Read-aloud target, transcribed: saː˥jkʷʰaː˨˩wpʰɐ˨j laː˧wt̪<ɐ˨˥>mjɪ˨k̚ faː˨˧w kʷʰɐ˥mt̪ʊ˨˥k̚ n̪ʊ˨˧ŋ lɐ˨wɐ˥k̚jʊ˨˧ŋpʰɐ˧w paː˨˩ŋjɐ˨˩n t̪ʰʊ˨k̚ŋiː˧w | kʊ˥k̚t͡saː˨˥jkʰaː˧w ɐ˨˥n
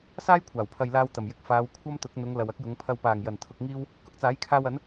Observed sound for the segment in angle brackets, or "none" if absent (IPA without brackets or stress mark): ɐ˨˩